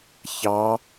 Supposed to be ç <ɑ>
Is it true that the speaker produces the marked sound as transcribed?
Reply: yes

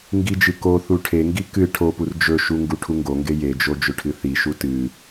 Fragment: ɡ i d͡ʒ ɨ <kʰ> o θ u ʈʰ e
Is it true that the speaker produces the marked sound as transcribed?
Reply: no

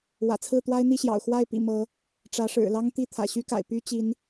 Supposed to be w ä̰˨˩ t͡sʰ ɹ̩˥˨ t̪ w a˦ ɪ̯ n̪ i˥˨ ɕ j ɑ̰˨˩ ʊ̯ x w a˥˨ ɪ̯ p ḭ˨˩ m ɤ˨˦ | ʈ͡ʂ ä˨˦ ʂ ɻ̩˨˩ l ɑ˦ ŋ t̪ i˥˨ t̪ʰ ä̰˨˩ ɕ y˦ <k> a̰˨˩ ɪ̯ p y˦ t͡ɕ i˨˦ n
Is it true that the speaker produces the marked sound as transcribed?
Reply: yes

